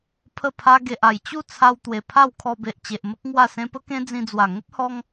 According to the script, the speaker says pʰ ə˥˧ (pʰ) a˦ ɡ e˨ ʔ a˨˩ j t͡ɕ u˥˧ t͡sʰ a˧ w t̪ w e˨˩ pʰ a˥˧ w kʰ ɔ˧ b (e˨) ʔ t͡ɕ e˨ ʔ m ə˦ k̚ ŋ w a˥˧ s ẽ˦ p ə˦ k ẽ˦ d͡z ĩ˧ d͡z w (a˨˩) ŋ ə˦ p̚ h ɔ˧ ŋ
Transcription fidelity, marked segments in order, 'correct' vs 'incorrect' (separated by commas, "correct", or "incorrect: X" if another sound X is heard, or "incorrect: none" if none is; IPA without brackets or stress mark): correct, correct, correct